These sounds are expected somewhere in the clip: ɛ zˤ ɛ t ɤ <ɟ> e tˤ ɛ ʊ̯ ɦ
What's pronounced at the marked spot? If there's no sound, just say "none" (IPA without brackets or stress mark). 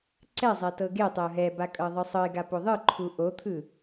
ɡ